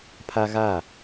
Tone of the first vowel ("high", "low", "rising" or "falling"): high